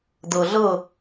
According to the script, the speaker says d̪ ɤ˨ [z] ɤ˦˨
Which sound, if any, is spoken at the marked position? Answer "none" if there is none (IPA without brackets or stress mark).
ɮ